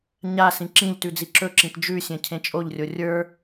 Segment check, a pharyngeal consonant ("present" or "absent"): absent